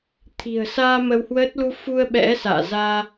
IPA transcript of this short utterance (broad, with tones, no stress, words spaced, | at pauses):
t̪ʰi̤˨˩ə̯saː˧ mə˧whwəː˦˥t̚ lu˧fu˧ə̯ ɓɛ̰˧˥sa̰ː˧˨ zaː˧